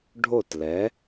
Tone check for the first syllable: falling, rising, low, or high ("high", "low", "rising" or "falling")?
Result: falling